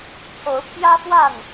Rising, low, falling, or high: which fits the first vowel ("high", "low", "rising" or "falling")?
rising